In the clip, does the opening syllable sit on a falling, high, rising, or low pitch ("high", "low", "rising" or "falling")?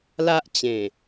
high